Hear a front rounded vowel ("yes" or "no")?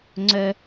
yes